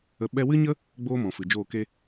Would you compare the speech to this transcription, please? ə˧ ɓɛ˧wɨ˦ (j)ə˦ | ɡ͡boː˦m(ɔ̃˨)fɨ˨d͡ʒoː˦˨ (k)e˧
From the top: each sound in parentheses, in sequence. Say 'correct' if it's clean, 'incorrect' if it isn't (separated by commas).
incorrect, correct, correct